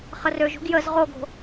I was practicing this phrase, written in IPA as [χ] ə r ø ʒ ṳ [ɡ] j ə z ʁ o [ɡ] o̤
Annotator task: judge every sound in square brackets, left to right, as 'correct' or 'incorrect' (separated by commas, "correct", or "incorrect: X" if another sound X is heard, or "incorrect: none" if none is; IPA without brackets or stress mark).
correct, correct, correct